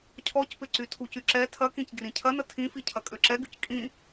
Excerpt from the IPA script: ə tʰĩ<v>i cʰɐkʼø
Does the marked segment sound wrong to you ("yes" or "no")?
yes